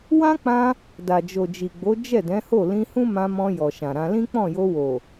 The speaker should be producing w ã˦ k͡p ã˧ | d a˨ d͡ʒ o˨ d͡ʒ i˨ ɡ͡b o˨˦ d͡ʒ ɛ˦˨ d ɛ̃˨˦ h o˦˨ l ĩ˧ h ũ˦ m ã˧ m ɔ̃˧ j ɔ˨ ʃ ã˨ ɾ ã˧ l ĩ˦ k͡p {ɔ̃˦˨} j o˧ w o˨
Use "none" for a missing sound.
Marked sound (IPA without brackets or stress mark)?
ɔ̃˦˨